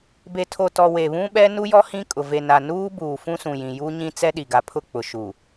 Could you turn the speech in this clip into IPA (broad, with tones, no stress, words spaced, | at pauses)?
be˨tʰo˨tɔ˨ we˨βũ˦ɓɛ˦ nu˦jɔ˦ hĩ˦kʼʊ˨ ve˨ na˨nuː˦ buː˨fũ˦sũ˨jĩ˨ ju˦ɲĩ˦ t͡sɛ˦ɗi˨ɡa˨ pʰʊ˦˨k͡pʊ˨ʃu˨